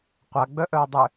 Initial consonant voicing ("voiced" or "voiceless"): voiceless